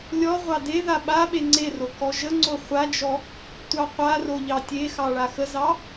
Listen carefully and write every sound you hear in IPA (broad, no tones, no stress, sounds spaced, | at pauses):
lʲ ɔ ʁʷ ɑ d e ð a ɓ a ɓ e ŋ͡ǀ e r o k ɔ ʒ ə ŋ͡ǀ o χʷ a d͡ʒ ɔ | tʷ ɑ qʷ a r o ʎ ɑ tʲ e x ɑ ɭ a x ə z ɑ